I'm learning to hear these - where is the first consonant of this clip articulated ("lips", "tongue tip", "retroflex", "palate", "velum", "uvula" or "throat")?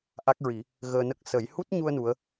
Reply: throat